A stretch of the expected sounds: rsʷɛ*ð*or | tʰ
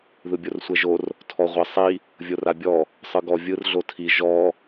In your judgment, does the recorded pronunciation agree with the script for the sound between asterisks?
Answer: no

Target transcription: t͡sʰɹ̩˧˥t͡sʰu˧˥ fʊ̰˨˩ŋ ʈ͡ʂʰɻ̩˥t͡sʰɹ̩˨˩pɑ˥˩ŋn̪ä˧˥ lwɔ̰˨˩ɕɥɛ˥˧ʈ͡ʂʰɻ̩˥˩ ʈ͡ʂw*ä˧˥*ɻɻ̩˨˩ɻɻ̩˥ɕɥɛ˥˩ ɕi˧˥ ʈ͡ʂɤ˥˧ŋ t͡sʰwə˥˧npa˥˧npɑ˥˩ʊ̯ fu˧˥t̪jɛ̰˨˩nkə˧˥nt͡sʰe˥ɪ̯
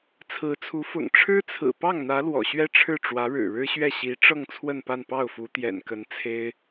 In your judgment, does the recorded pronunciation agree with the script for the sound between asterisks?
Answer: yes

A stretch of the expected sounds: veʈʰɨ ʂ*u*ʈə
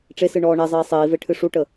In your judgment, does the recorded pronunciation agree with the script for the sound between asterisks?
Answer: yes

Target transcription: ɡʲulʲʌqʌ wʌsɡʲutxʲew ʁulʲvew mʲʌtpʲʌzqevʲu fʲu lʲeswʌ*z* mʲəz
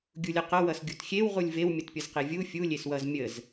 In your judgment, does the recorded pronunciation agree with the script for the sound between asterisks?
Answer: yes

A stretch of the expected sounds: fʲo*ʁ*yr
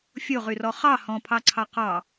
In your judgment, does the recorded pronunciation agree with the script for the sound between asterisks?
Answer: yes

